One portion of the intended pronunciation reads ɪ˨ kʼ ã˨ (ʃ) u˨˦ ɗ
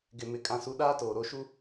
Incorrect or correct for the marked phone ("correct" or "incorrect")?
incorrect